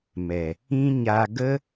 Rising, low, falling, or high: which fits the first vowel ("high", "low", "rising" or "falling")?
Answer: low